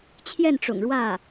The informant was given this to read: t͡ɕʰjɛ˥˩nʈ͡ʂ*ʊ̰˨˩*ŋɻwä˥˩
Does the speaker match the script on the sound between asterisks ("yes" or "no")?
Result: yes